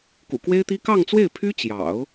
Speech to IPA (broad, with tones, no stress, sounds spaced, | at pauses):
k ṵ˨˩ k w e˥ ɪ̯ t̪ i˥ k ɑ˥˧ ŋ t͡s w e˥˩ ɪ̯ pʰ y˥ t͡ɕ j ɑ̰˨˩˦ ʊ̯